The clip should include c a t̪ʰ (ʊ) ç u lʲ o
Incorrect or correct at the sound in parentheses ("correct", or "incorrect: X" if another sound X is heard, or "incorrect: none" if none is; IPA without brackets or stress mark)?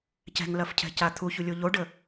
incorrect: u